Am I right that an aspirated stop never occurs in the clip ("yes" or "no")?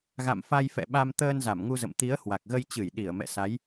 yes